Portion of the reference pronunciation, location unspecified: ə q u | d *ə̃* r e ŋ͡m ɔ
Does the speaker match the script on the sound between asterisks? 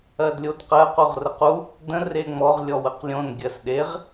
yes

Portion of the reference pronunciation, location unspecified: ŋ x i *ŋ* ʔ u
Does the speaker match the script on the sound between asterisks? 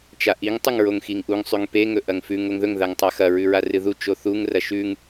yes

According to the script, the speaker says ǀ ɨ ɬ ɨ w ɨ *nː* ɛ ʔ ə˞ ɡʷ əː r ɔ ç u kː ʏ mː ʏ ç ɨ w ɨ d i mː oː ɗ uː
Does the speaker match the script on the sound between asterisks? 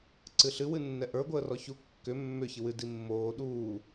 yes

